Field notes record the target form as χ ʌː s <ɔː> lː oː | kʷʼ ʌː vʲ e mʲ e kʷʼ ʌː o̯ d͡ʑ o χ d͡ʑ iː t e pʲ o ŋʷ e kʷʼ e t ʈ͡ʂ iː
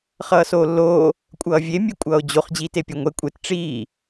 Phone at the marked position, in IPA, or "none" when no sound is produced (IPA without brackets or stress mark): oː